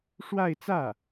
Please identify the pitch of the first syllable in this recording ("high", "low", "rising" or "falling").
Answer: falling